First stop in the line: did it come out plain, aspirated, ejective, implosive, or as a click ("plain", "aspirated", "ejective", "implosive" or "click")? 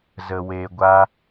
plain